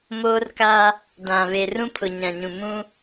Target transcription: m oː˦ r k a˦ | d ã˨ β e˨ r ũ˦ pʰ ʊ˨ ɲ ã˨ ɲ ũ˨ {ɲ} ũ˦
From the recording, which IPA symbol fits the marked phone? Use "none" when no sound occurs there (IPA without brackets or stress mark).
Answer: m